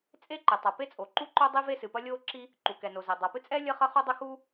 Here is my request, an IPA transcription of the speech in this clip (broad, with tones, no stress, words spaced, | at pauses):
t͡sʼe˥ǃe˩ tˤa˩pe˥t͡sʼo˩ǃu˥ ǃo˥ dˤi˥ve˥sɨ˩pɐ˥ lʲoː˥ǁi˥ | ǃu˩kɛ˩no˩zɛ˩ dˤa˩pɨ˥t͡sʼɛ˥ lʲɐ˥χɐ˥χo˥dˤɐ˥ xu˥